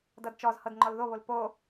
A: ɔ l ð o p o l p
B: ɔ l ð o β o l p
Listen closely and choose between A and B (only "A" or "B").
B